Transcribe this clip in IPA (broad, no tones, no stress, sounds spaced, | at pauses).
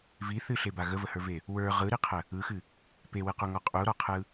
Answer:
v i θ ɨ ɬ e b a ɣ ə v ə h ə˞ v e | w ə˞ ʁ ɯ ɾ i qʰ ə | ɯ x ɨ | p e w ɨ q u ŋ ɔ qʼ u ɾ ɔ qʰ ɯ